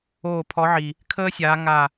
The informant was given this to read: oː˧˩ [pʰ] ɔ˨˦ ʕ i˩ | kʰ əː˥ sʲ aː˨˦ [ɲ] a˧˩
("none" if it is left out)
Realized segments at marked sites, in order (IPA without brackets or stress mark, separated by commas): pʰ, ŋ